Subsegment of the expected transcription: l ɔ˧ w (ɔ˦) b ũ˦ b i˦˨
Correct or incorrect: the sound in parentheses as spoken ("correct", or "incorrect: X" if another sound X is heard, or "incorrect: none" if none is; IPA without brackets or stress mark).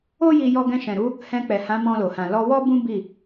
correct